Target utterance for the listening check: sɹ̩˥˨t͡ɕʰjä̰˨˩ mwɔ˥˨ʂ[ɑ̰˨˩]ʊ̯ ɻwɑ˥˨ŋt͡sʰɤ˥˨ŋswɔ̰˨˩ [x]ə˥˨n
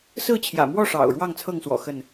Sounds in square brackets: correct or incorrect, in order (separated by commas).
correct, correct